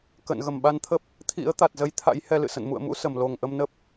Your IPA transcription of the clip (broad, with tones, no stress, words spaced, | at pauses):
kə̰ː˧˨nɣə˧˩mɓa˧nt̪ʰə˦˥p̚ | t̪ʰḭ˧˥ə̯t̪a˨˩t̚zə˨˦jt̪ʰa̰˧˥j hɛ˧lɨ̰˧˨sə̰˧˨n mṵ˧˨ə̯mṵ˧˥ sə˧˩m lo˨˩ŋʔə˧mnə˦˥p̚